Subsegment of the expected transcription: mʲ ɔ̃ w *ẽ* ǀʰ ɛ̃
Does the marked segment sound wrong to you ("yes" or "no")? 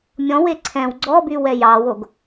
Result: yes